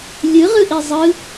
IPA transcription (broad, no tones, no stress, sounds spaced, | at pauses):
lʲ ɯ ʁ ɯ ʔ i zˤ ɯ